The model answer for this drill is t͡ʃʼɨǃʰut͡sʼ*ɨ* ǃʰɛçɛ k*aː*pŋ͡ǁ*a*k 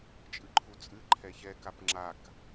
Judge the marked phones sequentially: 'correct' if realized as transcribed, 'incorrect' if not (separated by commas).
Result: correct, incorrect, correct